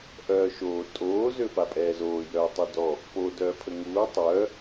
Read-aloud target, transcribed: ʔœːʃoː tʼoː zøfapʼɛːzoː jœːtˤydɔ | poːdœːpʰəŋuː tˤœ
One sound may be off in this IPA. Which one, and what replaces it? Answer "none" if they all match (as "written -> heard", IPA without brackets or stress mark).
none